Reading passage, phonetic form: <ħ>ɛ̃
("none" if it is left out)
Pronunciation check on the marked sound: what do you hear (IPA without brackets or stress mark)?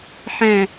ħ